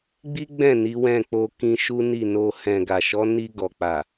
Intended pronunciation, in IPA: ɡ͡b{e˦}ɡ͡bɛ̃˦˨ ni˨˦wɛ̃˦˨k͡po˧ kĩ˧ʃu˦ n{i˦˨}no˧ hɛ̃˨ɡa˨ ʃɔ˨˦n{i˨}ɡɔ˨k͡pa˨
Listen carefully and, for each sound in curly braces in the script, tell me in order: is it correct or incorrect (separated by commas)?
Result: incorrect, correct, incorrect